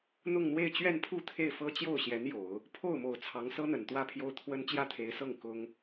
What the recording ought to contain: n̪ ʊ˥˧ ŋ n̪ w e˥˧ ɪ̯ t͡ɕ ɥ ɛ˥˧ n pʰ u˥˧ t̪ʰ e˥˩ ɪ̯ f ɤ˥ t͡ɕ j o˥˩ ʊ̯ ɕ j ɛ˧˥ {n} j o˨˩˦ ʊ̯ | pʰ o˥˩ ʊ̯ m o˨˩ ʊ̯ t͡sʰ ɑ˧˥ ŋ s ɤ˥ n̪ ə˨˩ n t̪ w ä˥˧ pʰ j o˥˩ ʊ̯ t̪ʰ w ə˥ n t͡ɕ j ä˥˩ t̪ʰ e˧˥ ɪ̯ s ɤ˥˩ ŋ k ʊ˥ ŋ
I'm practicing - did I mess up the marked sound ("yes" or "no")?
no